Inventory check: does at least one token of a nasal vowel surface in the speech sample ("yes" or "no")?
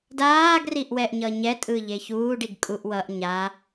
no